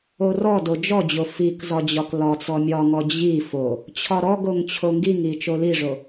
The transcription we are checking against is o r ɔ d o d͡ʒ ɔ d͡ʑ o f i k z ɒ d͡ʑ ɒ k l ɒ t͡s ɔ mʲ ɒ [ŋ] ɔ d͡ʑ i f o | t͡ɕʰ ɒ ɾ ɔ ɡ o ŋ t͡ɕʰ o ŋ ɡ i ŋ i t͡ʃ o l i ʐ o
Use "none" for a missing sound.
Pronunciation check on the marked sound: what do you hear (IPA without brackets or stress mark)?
ŋ